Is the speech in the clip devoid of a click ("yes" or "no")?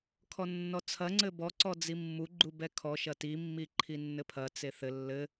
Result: no